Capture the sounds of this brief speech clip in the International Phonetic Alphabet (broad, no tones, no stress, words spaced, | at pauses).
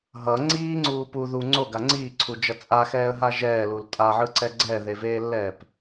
ɦʌ ŋ͡ǀiːŋ͡ǀuː pu ðu ŋ͡ǀoɡa ŋ͡ǀiːǀʰud͡ʒʌ t͡sʼaxɛːə̯ɦa ʒɛːlul tʼaʕɯǀɛ ɡ͡ǀɛðeveːlːɛːp